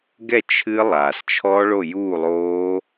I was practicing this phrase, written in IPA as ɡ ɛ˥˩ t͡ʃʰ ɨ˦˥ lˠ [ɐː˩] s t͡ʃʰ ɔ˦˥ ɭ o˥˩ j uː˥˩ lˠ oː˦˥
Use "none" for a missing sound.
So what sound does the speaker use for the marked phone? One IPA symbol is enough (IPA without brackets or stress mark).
aː˩